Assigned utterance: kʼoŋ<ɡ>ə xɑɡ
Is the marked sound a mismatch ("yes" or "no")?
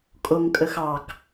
yes